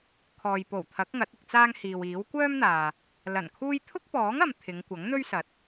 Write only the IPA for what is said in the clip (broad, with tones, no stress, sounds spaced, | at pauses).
kʰ ɔː˨ j p o˨˩ w t̪ʰ ɐ˨˥ k̚ ŋ ɐ˨˥ t̚ ɪ˧ k̚ t͡s aː˥ ŋ h iː˨ w iː˨˥ w kʷ œː˥ m n̪ aː˨ | l ɐ˨˩ n kʰ uː˥ j t̪ʰ ʊ˥ k̚ p ɔː˨˥ ŋ ɐ˨ m t̪ʰ ɪ˨˧ ŋ kʷ ɐ˨˥ ŋ n̪ ɵ˥ ɥ s ɐ˨˥ t̚